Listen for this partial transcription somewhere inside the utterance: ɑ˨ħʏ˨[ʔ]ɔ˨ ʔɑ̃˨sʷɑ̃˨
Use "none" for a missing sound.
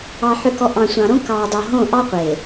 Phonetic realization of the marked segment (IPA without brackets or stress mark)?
k